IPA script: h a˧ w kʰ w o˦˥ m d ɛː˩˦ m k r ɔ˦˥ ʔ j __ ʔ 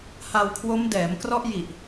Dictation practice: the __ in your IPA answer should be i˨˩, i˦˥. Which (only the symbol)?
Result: i˨˩